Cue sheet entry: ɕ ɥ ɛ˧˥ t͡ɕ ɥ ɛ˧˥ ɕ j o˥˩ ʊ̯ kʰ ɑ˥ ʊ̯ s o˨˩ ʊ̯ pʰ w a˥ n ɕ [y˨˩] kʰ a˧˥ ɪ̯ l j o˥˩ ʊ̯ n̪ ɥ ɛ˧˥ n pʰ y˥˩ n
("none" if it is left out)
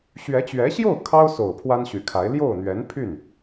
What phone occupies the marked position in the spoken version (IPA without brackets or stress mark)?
y˨˩